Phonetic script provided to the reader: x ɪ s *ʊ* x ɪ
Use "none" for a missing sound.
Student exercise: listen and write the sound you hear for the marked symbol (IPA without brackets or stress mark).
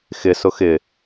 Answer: ʊ